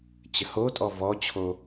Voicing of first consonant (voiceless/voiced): voiceless